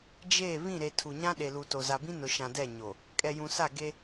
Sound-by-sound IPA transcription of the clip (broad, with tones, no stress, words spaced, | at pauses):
d͡ʒeː˦˨ βĩ˦˨ɾe˨tʰu˨ɲã˦ ɗe˨lu˨to˨ za˨bĩ˦ nʊ˨ʃã˨dɛ˦˨ ɲo˨ | kʼɛ˨jũ˨sa˦˨ ɡe˦